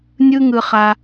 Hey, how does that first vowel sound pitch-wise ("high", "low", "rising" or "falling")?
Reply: high